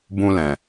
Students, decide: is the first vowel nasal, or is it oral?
nasal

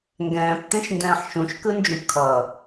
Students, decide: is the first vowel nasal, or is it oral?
nasal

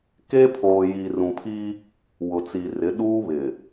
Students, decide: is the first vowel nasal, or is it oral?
oral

